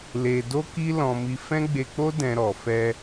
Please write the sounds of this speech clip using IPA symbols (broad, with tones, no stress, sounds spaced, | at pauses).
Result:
l e˧ d o˦ k i˦ l ɔ̃˧ m i˧ f ɛ̃˦ ɡ͡b e˧ k͡p o˦ d ɛ̃˧ ɾ ɔ˨ f ɛ˧